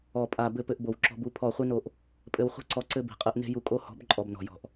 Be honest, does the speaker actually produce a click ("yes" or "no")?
yes